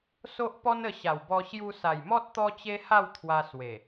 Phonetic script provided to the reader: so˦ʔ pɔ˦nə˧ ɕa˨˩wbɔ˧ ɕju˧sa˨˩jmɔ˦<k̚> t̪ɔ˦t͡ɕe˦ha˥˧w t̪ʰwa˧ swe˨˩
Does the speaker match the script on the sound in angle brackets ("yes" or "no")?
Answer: no